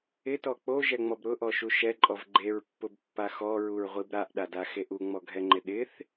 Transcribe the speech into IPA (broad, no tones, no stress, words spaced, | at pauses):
ɪtɔ k͡poʒɛŋ͡mɔb ɾʊʔɔʃu ʃɛǃʼɔv ɡ͡ǃeɹpːʊbpːa xɔɹuɹʁʷib ɾaʔɗadaxeʔ uŋ͡mɔɡʱɛŋ͡ǃɪ ɗɪθ